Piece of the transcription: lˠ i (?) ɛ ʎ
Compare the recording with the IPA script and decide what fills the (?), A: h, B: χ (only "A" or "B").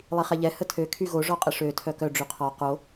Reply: B